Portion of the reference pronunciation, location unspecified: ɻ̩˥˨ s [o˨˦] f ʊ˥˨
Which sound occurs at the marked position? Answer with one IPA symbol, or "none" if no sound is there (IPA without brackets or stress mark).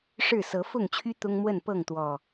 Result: ɤ˨˦